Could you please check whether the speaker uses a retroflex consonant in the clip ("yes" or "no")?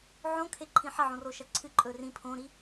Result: no